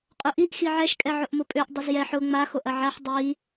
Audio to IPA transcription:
qʼʊʔiʔ xiʕɛʃ kʼɛʕʊʔmʊpʼøʔ dˤʊzjɛħ ʊ ŋ͡ma xoʔɐʕaħ dˤi

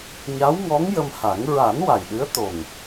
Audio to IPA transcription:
ɲa˧˥wŋɔ˧˥ŋ jə˧mha˨˩˦ŋ ɹa˨˩˦n wa˨˩j ɗɨ˧˥ə̯t̪o˨˩ŋ

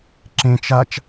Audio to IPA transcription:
ǁẽt͡ʃ at͡ʃ

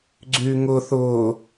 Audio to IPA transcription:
ɡ͡ǀyŋʊ θʊ

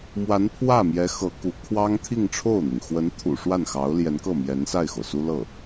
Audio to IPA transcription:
mwa˧˥npʰwä˥˩mjɛ˧˥ xɤ˧˥ ku˧˥ kʰwɑ˥ŋt̪ʰi˥˧ŋʈ͡ʂʰo˥˩ʊ̯n̪i˩ŋ xwə˧˥nt̪ʰṵ˨˩ ʂwa˥˩nxɑ˧˥ʊ̯ljɛ˧˥nkɤ˥˩ mjɛ˧˥nsa˥˩ɪ̯xo˩ʊ̯ su˥lɤ˥˩

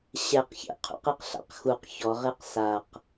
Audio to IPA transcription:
ɕɛqçḛ qʰṵqeqɬa̰qxuq çɔ ʁeqsaq

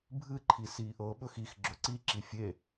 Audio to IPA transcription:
bʱɨǃʰi siːʔɤɓɵx ix ɡ͡ǁɵǀiǁi fʲe

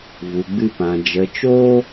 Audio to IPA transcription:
vu˧ɡ͡bɨ˦pã˧ d͡ʒə˧t͡ʃo˦

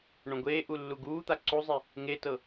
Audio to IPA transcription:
ɳõɡʷeːʔu lːuɡuːt̪a ǀuzˤi | ŋetɤ

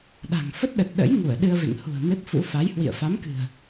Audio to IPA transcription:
ɗa̤˨˩ŋ fə˦˥t̚ɗə˨˩t̚ ɗə̰˧˥j ŋu˧˩ə̯ ɗɨ˧ə̯vḛ˧˨ŋ hṳ˨˩ə̯me˦˥p̚fṵ˧˥ fa˨˦jhwḭ˧˨ə̯ fa˨˦mkɨ̤˨˩ə̯

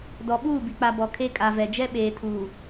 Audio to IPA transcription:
dɔ˨ɓuː˦˨bi˨k͡pa˨ bɔ˨kʰe˦kʼa˨vɛ˨ d͡ʒɛ˦ɓeː˨tʰuː˨

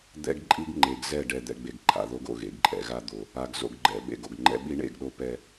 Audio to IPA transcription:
d̪ɛ̰˦ɡ ǃʼi˦ɡŋ͡ǃe˨ɡ zɛ˦˨ ɖɛ˨d̪ɛ̰˨ɡ͡be˨ɡ ǃʰa̰˨ðo˦ɡo̰˨ ɣḛ˨ɡǃʼɛ̰˨ɣa˦ d̪o˨ | a˨ɡ zo̰˨ɡɡ͡ǃɛ̰˨ ɓḛ˨ɡo̰˨ɡŋ͡ǃɛ̰˦ ɓi˦ɳḛ˦˨ɡɗo˦ pɛ˦

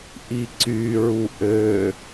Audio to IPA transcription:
ʔiǀy ɹuʔø

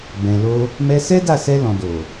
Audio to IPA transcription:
bɛ̃˨lo˧ | mɛ˧sɛ˦da˦˨sɛ˧ lɔ̃˨do˨

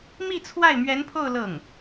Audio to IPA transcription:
mi˥˧t͡sʰwa˥˩ɪ̯ mɥɛ˧˥npʰo˥˧ʊ̯ lɤ˥˩ŋ

